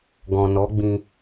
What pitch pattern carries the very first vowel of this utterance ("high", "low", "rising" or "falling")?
low